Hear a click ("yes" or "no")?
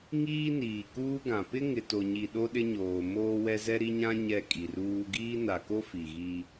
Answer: no